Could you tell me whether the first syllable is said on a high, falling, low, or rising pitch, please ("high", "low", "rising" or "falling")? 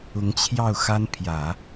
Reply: rising